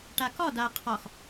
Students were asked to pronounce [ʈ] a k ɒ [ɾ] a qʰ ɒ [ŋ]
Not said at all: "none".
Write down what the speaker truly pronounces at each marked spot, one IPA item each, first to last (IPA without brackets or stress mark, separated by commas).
ʈ, d, x